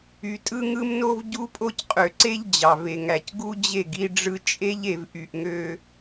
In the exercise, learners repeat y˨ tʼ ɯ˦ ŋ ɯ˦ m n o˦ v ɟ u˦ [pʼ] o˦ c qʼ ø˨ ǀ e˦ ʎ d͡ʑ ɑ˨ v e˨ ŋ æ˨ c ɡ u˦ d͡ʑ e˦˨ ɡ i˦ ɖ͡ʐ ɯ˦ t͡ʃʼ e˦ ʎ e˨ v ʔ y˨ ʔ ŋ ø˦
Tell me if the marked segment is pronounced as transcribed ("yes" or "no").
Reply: yes